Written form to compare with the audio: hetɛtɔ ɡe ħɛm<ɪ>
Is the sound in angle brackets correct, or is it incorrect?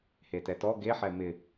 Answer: correct